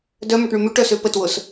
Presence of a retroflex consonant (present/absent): present